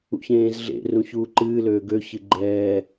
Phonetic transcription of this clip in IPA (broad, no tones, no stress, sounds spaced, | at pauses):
ṵ ç ẽː z ɮ ḛ r ũ ç uː ǃ ɨː l øː ɡ ø ç ɨ ɡ͡ǃ ɛː